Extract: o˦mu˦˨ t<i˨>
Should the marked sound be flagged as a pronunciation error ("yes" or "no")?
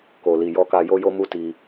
yes